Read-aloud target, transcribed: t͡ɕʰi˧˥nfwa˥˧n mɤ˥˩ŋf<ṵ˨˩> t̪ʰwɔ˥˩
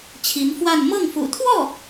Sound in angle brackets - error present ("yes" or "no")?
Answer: no